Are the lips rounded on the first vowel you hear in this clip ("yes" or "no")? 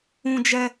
yes